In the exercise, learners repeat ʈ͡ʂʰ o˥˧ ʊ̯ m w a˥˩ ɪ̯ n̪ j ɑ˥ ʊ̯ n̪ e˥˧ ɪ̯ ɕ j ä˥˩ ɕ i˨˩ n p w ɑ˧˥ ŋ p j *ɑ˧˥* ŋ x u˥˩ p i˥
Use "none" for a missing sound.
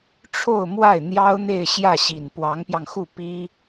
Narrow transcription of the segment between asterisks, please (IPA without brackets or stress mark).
ɑ˧